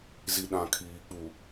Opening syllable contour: low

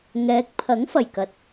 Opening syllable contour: rising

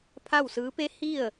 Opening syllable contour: falling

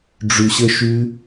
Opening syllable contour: low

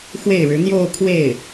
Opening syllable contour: falling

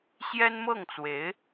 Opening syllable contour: high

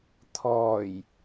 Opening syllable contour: low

